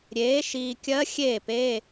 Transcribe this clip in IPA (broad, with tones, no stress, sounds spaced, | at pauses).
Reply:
ɾʲ eː˩˥ ʃ iː˨ kʲ ɜ˧˥ xʲ eː˥˩ p e˧˥˧